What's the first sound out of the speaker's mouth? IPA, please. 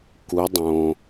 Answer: k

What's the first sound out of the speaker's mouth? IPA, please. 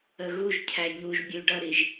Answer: ə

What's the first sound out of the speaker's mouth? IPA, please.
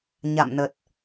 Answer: ɲ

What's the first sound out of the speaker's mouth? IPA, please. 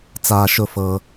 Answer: t͡s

